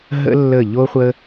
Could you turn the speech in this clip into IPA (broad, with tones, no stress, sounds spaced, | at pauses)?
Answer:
ɦ ə̰˥ lː ə˦˨ ʎ o˥ χʷ ə˥